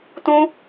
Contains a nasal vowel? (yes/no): yes